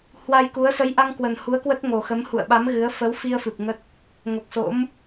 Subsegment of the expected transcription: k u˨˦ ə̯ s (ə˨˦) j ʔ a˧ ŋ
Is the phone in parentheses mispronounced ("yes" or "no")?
no